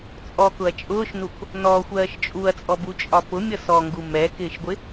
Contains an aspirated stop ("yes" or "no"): no